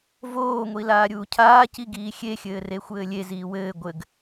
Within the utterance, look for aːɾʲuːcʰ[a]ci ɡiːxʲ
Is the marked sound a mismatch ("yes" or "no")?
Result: yes